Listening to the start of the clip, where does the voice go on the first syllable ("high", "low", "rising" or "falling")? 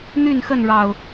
falling